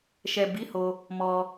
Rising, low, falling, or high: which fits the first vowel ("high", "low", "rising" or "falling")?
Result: low